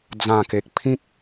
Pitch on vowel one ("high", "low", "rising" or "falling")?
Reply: low